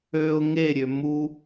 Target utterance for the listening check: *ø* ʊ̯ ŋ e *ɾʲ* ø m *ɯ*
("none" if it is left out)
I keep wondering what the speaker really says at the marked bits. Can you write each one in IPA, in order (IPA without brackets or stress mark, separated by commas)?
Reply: ø, ɾʲ, u